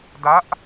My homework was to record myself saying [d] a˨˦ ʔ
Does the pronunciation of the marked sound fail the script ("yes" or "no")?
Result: no